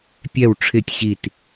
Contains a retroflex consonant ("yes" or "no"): yes